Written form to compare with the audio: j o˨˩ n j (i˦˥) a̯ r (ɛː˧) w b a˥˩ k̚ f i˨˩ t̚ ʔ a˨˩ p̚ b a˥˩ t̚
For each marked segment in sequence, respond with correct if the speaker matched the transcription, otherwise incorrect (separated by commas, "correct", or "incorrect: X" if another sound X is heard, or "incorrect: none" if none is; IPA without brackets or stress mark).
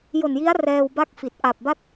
correct, correct